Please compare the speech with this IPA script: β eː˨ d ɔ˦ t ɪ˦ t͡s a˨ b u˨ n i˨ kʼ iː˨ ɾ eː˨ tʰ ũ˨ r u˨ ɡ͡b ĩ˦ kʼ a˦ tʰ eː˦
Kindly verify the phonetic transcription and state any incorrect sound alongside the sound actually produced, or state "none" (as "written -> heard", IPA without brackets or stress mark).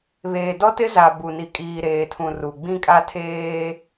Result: t͡s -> z